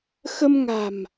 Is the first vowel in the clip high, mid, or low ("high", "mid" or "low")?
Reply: mid